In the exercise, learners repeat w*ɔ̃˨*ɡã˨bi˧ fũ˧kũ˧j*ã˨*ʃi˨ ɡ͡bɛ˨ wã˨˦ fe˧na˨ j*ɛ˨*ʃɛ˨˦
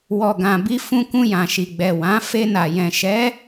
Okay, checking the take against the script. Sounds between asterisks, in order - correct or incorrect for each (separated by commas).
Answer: incorrect, correct, incorrect